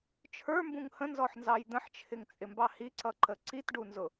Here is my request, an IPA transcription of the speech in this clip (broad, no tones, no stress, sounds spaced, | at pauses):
t͡ʃʰ ə˞ m b ũ ŋ h ə̃ n z ɔ ħ n z ɑ j d̪ ə̃ ħ t͡ʃʰ ɪ ŋ t͡sʼ ɪ m b ɑ h i ǀ ʌ ǃ ə ǀ i t ɖ u n z ʊ